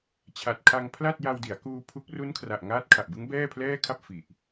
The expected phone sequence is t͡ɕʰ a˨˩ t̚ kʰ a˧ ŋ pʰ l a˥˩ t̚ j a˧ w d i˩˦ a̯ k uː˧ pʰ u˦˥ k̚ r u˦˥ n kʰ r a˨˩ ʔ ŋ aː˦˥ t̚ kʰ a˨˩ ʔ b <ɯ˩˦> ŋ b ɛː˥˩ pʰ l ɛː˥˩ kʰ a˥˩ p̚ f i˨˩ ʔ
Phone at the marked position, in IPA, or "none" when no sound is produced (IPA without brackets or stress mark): ɯ˦˥